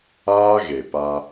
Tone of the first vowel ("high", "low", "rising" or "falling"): high